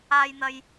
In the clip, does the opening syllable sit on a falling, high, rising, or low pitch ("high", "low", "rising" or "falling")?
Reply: high